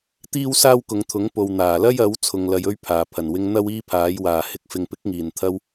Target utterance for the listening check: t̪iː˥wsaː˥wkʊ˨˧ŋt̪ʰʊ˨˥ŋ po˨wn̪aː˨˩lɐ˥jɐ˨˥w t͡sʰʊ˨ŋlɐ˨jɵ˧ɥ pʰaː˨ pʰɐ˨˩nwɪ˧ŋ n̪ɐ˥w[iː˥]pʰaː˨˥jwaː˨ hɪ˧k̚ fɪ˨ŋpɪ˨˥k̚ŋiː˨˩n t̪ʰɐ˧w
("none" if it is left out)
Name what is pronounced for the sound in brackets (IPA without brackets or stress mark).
iː˥